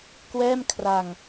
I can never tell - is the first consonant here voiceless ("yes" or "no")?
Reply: yes